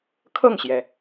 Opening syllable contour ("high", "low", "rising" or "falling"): falling